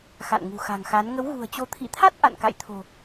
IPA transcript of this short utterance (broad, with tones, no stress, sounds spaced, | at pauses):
x a̰˧˨ n ŋ ṳ˨˩ x a̤˨˩ ŋ x a˨˦ n ŋ ə˨˦ w ɣ ṳ˨˩ ə̯ t͡ɕ o˨˦ t̪ʰ ḭ˧˨ t̪ʰ a˦˥ t̚ ʔ a̰˧˨ n k a̰˧˨ j t̪ʰ o̤˨˩